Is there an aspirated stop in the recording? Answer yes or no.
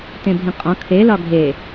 yes